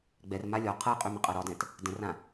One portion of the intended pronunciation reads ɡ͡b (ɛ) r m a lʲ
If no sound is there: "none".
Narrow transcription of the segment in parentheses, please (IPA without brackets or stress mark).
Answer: ɛ